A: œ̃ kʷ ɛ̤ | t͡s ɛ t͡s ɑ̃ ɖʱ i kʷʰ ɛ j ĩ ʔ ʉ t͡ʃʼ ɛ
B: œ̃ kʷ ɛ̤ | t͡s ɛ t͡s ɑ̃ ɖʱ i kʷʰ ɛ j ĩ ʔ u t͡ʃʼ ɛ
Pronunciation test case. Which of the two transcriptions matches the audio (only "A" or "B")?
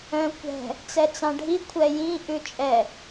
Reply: A